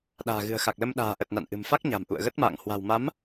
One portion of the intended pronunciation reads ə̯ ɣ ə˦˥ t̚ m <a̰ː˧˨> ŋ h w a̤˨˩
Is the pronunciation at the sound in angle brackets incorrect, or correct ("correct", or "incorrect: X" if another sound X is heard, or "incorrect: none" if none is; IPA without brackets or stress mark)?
correct